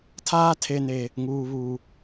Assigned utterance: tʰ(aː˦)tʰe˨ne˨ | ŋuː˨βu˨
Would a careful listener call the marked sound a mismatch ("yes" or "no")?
no